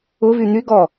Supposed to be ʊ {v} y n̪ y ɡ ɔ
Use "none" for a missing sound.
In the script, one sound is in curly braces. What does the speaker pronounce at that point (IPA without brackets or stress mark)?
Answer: v